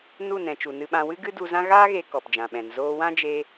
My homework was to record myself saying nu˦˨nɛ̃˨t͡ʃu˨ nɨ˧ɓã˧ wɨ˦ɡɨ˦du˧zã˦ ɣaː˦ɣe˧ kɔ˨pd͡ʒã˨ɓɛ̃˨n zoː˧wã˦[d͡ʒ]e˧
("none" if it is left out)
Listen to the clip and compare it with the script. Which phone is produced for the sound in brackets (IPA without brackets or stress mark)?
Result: d͡ʒ